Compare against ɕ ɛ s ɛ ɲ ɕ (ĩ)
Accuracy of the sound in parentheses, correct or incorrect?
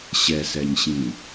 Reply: correct